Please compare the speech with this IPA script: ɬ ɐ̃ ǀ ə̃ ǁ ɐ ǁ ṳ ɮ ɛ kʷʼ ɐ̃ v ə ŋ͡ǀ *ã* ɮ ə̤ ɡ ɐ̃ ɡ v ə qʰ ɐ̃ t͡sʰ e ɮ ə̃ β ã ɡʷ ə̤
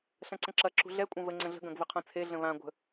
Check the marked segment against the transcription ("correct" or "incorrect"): incorrect